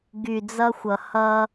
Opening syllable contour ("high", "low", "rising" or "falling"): low